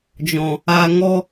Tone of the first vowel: low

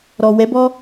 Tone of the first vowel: low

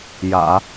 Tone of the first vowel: low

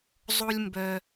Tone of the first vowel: high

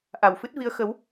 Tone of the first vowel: low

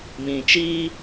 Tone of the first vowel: low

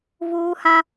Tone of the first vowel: high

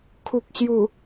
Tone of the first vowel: low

